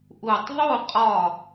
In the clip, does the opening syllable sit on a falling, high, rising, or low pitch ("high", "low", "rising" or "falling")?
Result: falling